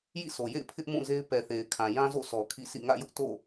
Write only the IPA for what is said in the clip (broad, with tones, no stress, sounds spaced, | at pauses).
j ḭ˦˨ sʰ o˨ j ḛ˦˨ ɪ̯ pʰ ɪ˦ ʔ m ũ˦˨ z e˦ ɪ̯ p ɛ˨ θ e˨ ɪ̯ kʰ ã˨ j ã˦ z o̰˦˨ s ɔ˨ kʰ ḭ˦˨ s ḭ˦˨ ŋ ä̰˦˨ j ʊ˦ ʔ t o̰˦˨